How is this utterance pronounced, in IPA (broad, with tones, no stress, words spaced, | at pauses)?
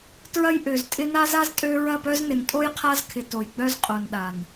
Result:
tɹɐ˦jʔø˨ztʼɪ˦ na˦za˦z tʼø˦ ɹɐ˦˨pœ˦znɪ˨n tʼo˦jqʰa˦zkʰɪ˨ to˨jɡ͡bœ˦z qʼo˨nɗa˨n